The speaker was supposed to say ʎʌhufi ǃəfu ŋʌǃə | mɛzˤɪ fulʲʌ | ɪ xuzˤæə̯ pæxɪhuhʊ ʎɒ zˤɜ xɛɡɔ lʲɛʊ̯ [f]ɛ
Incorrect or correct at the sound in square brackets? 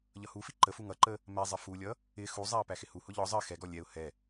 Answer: incorrect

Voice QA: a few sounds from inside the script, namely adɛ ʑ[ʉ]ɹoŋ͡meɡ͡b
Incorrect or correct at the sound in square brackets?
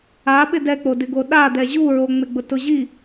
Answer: incorrect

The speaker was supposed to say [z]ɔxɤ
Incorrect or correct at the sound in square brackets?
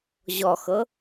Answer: incorrect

